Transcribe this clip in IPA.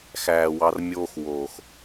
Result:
x æː˨ w ɑ˧ r mʲ oː˦ x w oː˨ x

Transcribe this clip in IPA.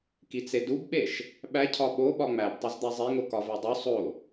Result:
k i t͡s e d u b ɓ e ʃ | ɓ æ cʰ ɒ ɓ o ɓ ɒ ŋ͡m æ b tˤ e z d̪ æ zˤ e ŋ o k ɒ v e dˤ u sˤ o

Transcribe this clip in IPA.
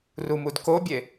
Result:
r u m u d k o bʲ e

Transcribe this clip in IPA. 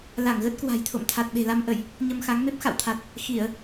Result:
l a˧˩ ŋ ɣ ə˦˥ t̚ k w a̤˨˩ j t̪ʰ o̰˧˨ m t̪ʰ a˨˩ t̚ ɓ e̤˨˩ l a˧ m ʔ ə˧˩˨ j | ɲ ə˧ m x a˨˦ ŋ m e˦˥ p̚ x a̰˧˨ w t̪ʰ a˨˩ t̚ | x i˧˩˨ ə̯

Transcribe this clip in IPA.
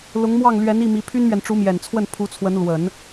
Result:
l ʊ˧˥ ŋ m w ɑ˥˩ ŋ l ɥ ɛ˧˥ n i˥˩ m i˧˥ pʰ y˥ n m ɥ ɛ˨ n ʈ͡ʂ u˧˥ m j ɛ˨˩ n t͡sʰ w ə˥˩ n pʰ u˧˥ t͡sʰ w ə˧˥ n l w ə˨˩˦ n

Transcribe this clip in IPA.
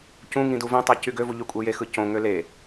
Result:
c ũ ŋ ĩ d u v ĩ tˤ æ c y ɡ ø v u ʎ y kʷʼ e j e x ɯ c õ ŋ ø l e

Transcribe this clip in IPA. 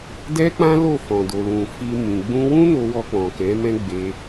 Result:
d ɛ˦ k͡p ã˦ l o˦˨ f ɔ̃˨ d o˨ l ũ˨ f i˧ m ĩ˨ ɡ͡b ũ˧ w ũ˦ n o˧ w ɔ˧ k͡p ɔ̃˨ k ɛ̃˨˦ m ɛ̃˦ ɡ͡b e˧

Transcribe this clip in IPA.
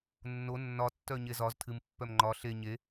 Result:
nː o nː ɒ tː œ ɲ e z ɒ z tʰ ɨ m pː œ m ŋ͡ǃ ɒ ɬ e ɲ e

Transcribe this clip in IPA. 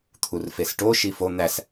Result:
t̪ʰ u r f e s ʈ o ʃ i f o n̪ æ s

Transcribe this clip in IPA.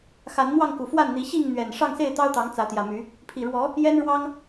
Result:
x a˨˦ n n̪ w ɑ˥˨ ŋ k u˨˩ f w a˥˨ n n̪ i˨˦ ɕ i˥˨ ŋ n̪ ɥ ɛ˨˩ n ʂ ɑ˥˨ ŋ s e˥˨ ɪ̯ t̪ ɑ˦ ʊ̯ t̪ ɑ˨˦ ŋ t͡s ä˨˦ t̪ j ä˨˩ m y˨˦ | pʰ i˨˩ ɻ w ɔ˨˦ | j ɛ˦ n ɻ w ɑ˦ ŋ

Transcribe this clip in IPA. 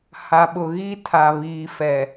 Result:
h a˨ ɓ ʊ˨ ɣ i˦ tʰ a˨ β iː˨ f ɛ˨

